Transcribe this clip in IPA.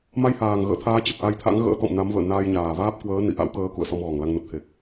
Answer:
m a˧ j h aː˨˩ ŋ ɣ ə̰ː˧˨ t̪ʰ aː˨˦ t͡ɕ ə˨˩ p̚ ʔ a˧ j t̪ʰ a̰˧˥ ŋ ɣ ə̰ː˧˥ t̪ ɔ̰˧˨ m n a˨˦ m v ə̰ː˧˨ n aː˧ j ɲ aː˨˩ v aː˦˥ p̚ k w əː˨˦ n ḭ˧˨ ʔ a̰˧˥ w k əː˨˦ k ṵ˧˨ ə̯ s ɔ˧ m ɣ ɔ˨˩ ŋ l a˧ ŋ n ə˨˩ p̚ t̪ʰ e˨˩ k̚

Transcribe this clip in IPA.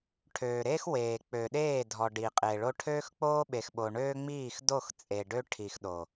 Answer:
ʈʰ øː˨ ɾ e˦ x w eː˨ k͡p ø˨ ɗ eː˦˨ dʱ ɔ˨ ɖ i˨ qʼ eː˨ ɭ o˦ ʈʰ øː˦ x k͡p oː˦ ɓ e˨ x ɓ o˨ ɳ øː˦ ŋ͡m iː˦˨ x d o˦˨ x t͡sʼ e˨ ɖ ø˦ ʈʰ i˨ x ɗ o˨

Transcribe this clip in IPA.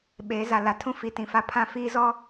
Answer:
ɓ e˨˦ z a˨ l a˨ tʰ ũ˦ f i˨ t ĩ˨ f a˦ pʰ ã˦ f iː˦ z ɔ˦

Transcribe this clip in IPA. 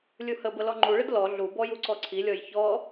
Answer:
lʲ u h ə b ə l ɔ ŋ͡ǃ u ɭ ɪ d l ɔ ɮ u b ɔ j u ǀ ɔ ǀʰ i lʲ ɔ j ç ɔ

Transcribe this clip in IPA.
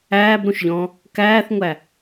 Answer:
æː b ɾ ũ ʃ ʎ ɔ̃ː | k æː θ ŋʷ æ

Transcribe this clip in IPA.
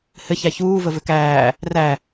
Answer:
h ɘ ç æ ç uː v ə v ɘ k æː | r æ

